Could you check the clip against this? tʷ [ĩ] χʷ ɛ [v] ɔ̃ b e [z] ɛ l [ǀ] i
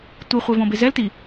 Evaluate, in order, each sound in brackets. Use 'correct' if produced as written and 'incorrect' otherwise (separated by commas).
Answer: incorrect, correct, correct, incorrect